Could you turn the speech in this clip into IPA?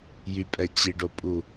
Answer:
j y pʼ ɛ t͡ɕ i ɖ o pʼ u

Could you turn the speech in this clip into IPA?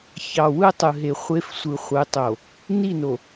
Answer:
ç ɑ˨ w ɯ˦ tˤ ɯ˨ ɦ e˨ χʷ e˦ f sʷ ɯ˨ χʷ ɯ˨˦ tˤ o˨ | n i˦˨ n o˨

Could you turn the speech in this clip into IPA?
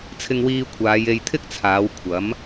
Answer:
t͡sʰ ɪ˧ ŋ w iː˧ kʷʰ aː˨˧ j e˧ j t̪ʰ ɪ˥ k̚ t͡sʰ aː˨˧ w kʷʰ ɐ˨˥ m

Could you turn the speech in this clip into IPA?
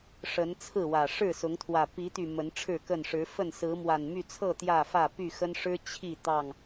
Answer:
ʂ ə˨˦ n t͡sʰ ɹ̩˥˨ w ä˨˩ ʂ ɻ̩˥˨ s ʊ˨˦ ŋ t̪ʰ w ä˨˩ p i˨˦ t̪ y˨˩ m ə˨˦ n ʈ͡ʂʰ ɻ̩˥˨ k ə˥˨ n ʂ ɻ̩˨˦ f ə˥˨ n s ɹ̩˨˦ m w a˨˩ n m y˥˨ t͡sʰ ɤ˥˨ t̪ j ä˥˨ f ä˥˨ p y˥˨ x ə˦ n ʂ ɻ̩˦ t͡ɕʰ i˥˨ t̪ ɑ˥˨ ŋ

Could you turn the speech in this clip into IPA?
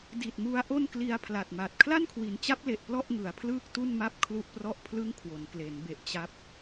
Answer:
d i˨˩ t̚ m u˦˥ a̯ ʔ o˥˩ n k l i˧ a̯ pʰ l a˨˩ t̚ m a˨˩ t̚ kʰ l a˥˩ n kʰ w i˩˦ n t͡ɕ a˦˥ p̚ l e˨˩ ʔ p l ɔ˥˩ ʔ ŋ ɯ˩˦ a̯ pʰ l ɯː˥˩ k̚ t u˥˩ n m a˥˩ p̚ kʰ l u˥˩ ʔ p r ɔ˥˩ ʔ pʰ l ɯ˥˩ ŋ kʰ w o˩˦ n k l e˩˦ n b e˨˩ ʔ t͡ɕ a˦˥ p̚

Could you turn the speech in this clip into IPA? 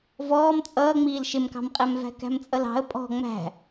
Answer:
v ɔː m t͡sʼ ʌː ŋ͡m iː l ʃ ɪ m k ɑ̤ m qʼ æ m v æ̤ k æ̤ m t͡sʼ ʌ l ɑ̤ ə̯ pʼ ɔ̤ ŋ͡m æ̤

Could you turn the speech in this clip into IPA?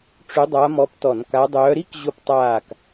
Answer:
ʈ͡ʂ ʏ˧˥ dˤ a˧˥ m ɔ˧˥ p t ɔ˧˩˧ n k a˧˥ dˤ œː˧˥ ɾ i˥ k ʑ ʊ˦˨ p tˤ aː˦˨ k

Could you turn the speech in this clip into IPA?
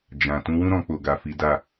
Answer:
d͡ʒ ã˨ t ũ˨˦ w ũ˦ ɾ ɔ̃˧ k͡p o˨ ɡ a˨ f i˨˦ d a˦˨

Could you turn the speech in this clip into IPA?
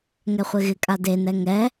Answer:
ŋ ɛ χʷ e ɣ ɪ kʼ a d e n ɛ ŋ ɛ

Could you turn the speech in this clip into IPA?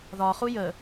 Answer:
ð ɒ χ u j ə

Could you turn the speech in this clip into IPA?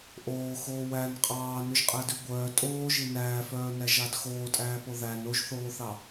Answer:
ʔ oː x oː w æ n qʼ ɑː n ʉ ʒ qʼ æ d ʉ ɡʷ œː tʼ oː ʒ i n æː f œː n æ ʒ ɑ d x oː tʼ æː p o ð æ n o ʒ θ oː θ ɑ

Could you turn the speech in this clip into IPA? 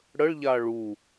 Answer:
ɽ ə ɭ ʎ a ɭ u

